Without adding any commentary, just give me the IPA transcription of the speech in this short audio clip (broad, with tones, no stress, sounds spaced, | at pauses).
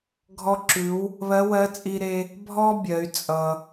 ɡʱ ɔ˧ ǁ ʉ˩˧ w | β ɜ˧˥ w ɜ˧˥ t͡sʼ i˧ ɾ e˧ | bʱ ɔ˥ bʲ ɜ˩˧ y̯ t͡sʼ ʌ˩